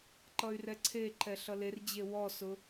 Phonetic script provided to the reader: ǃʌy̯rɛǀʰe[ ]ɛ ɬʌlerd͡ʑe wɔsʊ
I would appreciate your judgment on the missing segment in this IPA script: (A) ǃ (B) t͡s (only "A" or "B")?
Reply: A